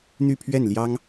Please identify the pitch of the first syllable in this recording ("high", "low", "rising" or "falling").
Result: falling